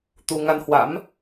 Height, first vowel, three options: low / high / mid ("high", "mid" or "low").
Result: high